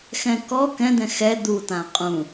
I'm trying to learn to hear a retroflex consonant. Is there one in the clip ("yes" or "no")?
no